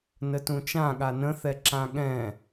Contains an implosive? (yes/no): yes